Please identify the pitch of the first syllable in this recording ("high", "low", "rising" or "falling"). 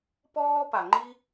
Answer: high